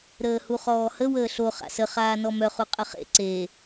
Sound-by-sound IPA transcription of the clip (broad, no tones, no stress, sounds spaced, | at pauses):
ɾ əː h u χ ɔː h ə w əː ɬ o χ a̰ s ə χ aː n ɔ m œ χ u qʼ ə χ ḛ ǀ eː